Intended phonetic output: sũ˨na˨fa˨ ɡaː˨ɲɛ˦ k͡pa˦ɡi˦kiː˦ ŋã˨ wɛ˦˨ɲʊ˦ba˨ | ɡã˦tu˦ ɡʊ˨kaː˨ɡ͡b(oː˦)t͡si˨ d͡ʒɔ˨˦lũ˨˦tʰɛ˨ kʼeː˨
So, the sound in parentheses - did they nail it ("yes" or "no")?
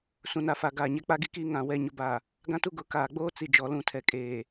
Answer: yes